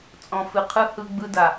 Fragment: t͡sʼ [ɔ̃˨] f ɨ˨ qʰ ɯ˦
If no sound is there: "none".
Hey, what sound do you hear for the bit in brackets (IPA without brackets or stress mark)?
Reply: ɔ̃˨